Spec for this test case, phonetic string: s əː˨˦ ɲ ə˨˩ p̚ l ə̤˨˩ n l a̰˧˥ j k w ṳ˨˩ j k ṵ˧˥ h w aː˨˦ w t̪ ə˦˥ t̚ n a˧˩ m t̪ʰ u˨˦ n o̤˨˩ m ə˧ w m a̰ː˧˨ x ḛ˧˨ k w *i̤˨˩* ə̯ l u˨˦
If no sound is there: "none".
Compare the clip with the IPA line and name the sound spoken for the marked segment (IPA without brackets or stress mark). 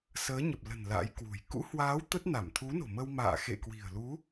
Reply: i̤˨˩